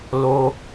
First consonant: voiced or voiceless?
voiced